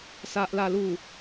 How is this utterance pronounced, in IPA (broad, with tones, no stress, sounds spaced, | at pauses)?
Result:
s a˨ ʔ l a˨˩ l u˨˩